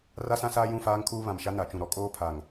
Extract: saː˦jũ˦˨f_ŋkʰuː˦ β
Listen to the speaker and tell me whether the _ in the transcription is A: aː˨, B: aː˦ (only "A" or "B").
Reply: B